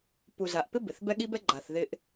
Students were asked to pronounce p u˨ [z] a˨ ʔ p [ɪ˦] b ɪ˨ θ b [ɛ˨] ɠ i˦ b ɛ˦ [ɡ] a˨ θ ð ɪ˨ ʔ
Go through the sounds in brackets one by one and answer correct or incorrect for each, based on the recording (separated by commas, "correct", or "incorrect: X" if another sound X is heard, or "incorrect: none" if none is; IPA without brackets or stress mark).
correct, correct, incorrect: ɛ˦, incorrect: ɡ͡ǃ